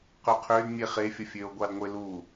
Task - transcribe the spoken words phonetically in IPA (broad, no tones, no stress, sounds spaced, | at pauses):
q ø qʰ ø d mʲ e χ e fʲ ʌ fʲ ø o̯ ɡʷ ɑ d ŋʷ e l u